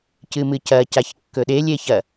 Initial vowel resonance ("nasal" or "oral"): oral